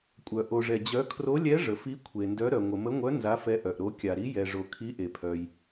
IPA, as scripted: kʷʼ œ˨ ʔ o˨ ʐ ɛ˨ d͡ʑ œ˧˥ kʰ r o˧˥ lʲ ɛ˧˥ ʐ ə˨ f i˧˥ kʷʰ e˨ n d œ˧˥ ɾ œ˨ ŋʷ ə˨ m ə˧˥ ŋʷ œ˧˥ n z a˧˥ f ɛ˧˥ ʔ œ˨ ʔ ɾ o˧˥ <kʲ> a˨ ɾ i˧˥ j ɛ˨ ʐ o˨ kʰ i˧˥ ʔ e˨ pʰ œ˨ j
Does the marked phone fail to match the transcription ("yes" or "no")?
no